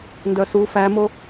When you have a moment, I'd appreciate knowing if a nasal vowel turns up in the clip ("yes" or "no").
no